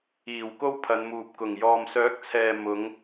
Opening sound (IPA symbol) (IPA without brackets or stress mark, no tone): iː